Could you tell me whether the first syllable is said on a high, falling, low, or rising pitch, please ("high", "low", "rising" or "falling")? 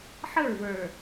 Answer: falling